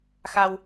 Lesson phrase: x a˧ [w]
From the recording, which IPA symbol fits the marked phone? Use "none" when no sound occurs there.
w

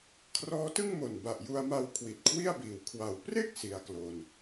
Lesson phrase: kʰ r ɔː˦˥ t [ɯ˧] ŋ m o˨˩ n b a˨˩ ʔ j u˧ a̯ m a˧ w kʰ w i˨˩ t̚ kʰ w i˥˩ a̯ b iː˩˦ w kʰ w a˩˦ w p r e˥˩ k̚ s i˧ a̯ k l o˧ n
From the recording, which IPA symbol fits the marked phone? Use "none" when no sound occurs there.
ɯ˥˩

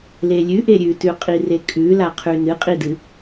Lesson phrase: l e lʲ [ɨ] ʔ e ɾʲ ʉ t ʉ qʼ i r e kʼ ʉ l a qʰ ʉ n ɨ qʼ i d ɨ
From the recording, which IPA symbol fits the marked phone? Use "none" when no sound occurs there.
ʉ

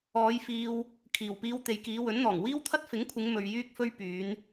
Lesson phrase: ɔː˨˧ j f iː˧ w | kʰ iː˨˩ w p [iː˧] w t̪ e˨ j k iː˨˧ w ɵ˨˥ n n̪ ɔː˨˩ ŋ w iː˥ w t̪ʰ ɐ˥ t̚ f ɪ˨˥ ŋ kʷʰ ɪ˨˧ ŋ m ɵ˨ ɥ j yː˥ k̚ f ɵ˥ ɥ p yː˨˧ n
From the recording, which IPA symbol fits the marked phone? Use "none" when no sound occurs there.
iː˧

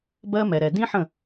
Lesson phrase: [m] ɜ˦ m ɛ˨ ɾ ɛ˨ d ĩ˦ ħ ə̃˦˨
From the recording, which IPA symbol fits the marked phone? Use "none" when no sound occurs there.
b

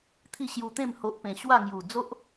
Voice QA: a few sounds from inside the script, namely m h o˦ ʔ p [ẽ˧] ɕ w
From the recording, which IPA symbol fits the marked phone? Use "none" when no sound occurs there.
ẽ˧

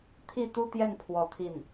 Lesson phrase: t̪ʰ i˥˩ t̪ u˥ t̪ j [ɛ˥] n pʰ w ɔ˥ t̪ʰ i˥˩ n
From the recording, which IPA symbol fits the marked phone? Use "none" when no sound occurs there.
ɛ˥˩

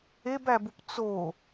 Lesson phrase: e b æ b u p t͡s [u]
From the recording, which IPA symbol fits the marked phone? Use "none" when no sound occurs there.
o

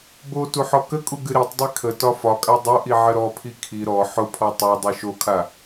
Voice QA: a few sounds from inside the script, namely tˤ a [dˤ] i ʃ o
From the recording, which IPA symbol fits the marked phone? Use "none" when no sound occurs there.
dˤ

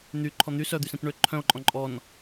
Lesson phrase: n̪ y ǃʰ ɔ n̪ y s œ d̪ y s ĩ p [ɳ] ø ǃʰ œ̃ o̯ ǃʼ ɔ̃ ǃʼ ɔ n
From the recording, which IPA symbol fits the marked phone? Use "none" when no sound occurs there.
ɳ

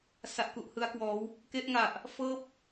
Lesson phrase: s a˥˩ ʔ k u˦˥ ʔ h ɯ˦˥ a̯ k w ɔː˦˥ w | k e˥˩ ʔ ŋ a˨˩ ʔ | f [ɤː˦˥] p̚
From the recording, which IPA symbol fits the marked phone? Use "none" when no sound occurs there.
ɤː˥˩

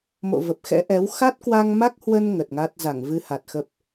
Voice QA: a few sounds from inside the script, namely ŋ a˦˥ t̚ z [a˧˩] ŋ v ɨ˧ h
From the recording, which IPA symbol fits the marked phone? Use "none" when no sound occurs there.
a˧˩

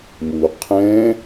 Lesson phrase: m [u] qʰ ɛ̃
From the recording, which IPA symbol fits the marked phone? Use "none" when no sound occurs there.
u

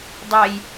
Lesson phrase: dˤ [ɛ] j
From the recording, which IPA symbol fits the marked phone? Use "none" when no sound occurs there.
ɛ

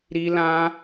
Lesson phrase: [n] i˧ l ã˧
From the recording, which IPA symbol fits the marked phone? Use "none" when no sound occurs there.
ɾ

